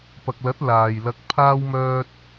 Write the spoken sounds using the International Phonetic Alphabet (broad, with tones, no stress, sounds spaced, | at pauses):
p ɐ˨ k̚ l ɐ˨˥ t̚ l aː˨ j l ɐ˧ k̚ pʰ aː˥ w m œː˥ t̚